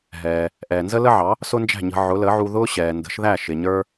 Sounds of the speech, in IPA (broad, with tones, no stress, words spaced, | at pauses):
ɦɛː˩ | ʔɛː˩nzə˥lə˥ʕɑ˩˥ | sʊ˥nd͡ʒæ̤˥˩ɲə̤˧ ʕʊ˩˥lə˩˥ ʕu˧ðʊː˥ ɕɛː˩ndə̤˩˥ʃðæ˥˩ ʃɪ˩ɲə˞˥